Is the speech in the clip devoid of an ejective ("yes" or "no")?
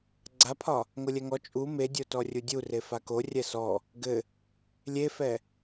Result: no